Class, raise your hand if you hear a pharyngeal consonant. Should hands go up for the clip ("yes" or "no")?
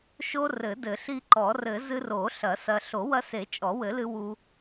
no